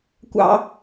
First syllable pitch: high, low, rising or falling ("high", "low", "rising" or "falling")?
high